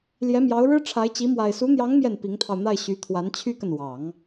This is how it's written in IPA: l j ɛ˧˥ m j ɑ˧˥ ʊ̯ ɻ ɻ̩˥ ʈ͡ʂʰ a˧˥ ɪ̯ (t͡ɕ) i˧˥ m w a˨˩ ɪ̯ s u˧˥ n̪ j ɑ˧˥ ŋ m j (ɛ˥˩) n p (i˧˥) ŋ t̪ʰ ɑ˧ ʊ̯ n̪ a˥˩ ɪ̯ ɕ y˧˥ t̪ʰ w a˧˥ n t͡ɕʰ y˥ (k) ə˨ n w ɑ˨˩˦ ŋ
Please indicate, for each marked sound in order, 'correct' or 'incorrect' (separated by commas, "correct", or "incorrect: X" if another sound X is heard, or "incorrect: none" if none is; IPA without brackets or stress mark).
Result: correct, correct, correct, correct